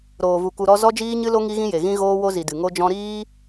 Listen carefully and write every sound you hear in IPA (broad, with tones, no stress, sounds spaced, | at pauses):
ɾ oː˨ v u˨ k u˧ ɾ ɔ˦ z ɔ˦ d͡ʒ iː˦ ɲ ɨ˦ l o˦ ŋ i˦ ɣ ĩ˦ j e˨ ɣ ĩ˦ ɣ oː˦ w o˦ z i˨ d ɨ˨ ŋ o˦ d͡ʒ ɔ̃˦ ɾ iː˦